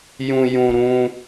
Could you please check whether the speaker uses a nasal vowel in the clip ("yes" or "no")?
yes